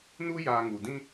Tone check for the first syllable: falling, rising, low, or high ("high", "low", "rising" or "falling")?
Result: high